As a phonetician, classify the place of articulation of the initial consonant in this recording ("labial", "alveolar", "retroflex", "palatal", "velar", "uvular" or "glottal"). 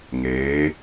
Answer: velar